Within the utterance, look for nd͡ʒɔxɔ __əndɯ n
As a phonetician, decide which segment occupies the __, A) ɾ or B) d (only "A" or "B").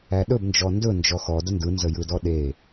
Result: B